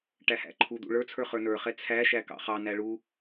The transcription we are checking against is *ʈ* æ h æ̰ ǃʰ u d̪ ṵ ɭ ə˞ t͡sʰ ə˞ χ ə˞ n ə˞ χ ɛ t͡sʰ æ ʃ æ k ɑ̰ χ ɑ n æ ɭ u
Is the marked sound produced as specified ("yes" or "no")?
yes